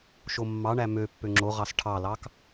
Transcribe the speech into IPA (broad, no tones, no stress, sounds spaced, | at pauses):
ʃ o mː ɑ ɳ æ m ø pː ø ŋ͡ǁ o ʁ ɑ s ʈʰ ɑ l ɑ k